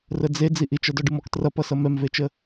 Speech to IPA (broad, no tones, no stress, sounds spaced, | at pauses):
r ə d͡z e d͡z i ʔ i t͡ʃ ʌ d ɔ ɖ ɨ m ɔ k t r ʌ p ʌ s ʌ m ɛ m v e t͡ʃ ə